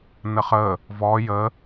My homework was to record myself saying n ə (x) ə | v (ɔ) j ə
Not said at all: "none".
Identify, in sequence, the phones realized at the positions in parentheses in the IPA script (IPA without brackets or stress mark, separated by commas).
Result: χ, ɔ